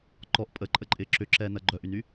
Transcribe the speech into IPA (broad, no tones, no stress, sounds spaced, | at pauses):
ǃ ɔ ʔ pʼ ə ǃʼ ə ǃʼ ɪː ǁ ʏ ǁ ɛː n ɐ ɡ͡ǃ œ ʔ y n y